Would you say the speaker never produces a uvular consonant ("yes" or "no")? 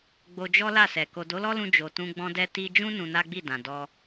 yes